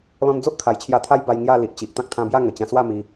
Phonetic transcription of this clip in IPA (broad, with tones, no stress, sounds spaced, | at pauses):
l ɔ̃˧ n d͡z o˦ ʔ kʰ a˨˩ j t͡ɕʰ j a˧ t̪ʰ a˦ j b a˧ j ŋ j a˥˧ l i˨ ʔ t͡ɕ i˨ ʔ t̪ ã˦ k̚ t̪ʰ ã˧ b j a˥˧ ŋ ə˨˩ t͡ɕ ã˧ s w a˥˧ m i˧